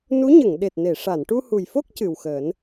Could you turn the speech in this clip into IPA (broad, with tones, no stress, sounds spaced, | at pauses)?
n u˧˥ ɲ ə˨˩˨ ŋ ɗ e˨˩ t̚ n e˨˩˨ ʂ a˨˩˨ n ʈ u˧ h u˨˩ j f o˦˥ k̚ c ɨ˨˩ w x əː˨˩˦ n